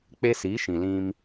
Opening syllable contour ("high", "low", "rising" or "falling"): high